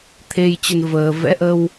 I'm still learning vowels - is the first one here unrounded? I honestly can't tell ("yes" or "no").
yes